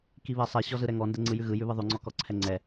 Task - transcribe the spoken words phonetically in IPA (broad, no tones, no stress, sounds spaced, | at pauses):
k i β ɛ sˤ ɛ ɕ ɔ z ɯ ɾ ɛ ŋ ɔ n d ɛ ŋ͡ǀ ɯ j ʉ ɣ ɯ j ʉ β ɯ ðˤ ʉ ŋ͡ǀ ɔ k ɔ ǀʰ ɛ ŋ͡ǀ ɛ